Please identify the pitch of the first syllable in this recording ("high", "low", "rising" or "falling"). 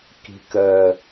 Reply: low